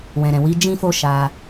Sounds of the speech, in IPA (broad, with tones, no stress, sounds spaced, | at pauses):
w ɛ̃˨ ɾ ɛ̃˨ w i˨˦ d͡ʒ ĩ˦ f o˦ ʃ a˧